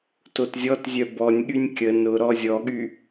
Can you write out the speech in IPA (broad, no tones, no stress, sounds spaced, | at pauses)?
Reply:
t o t zʲ ɔ t zʲ œ b ɔ nʲ ɠ y nʲ kʲ ə n ʊ ɾ ɔ zʲ ɔ ɠ y